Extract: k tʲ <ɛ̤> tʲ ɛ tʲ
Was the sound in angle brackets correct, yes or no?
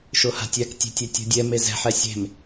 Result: no